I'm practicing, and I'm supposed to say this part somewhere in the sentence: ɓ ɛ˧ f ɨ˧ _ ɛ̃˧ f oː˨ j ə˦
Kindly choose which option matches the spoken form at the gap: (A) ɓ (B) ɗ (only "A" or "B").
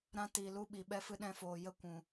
B